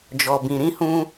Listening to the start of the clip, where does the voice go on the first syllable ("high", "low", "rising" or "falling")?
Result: low